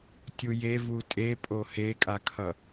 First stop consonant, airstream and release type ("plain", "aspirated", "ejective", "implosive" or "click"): plain